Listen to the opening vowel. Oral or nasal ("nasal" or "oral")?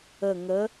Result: oral